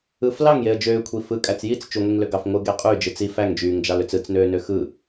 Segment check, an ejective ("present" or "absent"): present